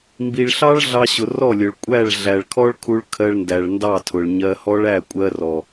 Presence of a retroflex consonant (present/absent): present